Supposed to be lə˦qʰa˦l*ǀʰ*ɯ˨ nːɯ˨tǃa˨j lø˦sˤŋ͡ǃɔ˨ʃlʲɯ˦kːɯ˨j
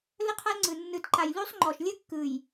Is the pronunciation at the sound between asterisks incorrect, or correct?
incorrect